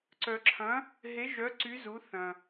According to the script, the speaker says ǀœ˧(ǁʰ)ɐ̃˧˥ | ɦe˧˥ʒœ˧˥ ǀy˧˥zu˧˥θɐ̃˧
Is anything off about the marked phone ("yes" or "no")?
no